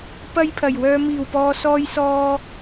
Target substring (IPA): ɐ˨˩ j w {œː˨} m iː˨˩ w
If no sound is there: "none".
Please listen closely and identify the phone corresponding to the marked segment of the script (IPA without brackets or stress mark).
œː˨